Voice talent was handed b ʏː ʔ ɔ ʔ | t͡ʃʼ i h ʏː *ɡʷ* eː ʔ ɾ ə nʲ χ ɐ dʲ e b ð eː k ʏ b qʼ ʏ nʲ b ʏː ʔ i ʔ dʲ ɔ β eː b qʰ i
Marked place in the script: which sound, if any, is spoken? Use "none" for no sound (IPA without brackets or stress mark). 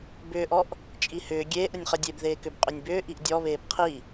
ɡʲ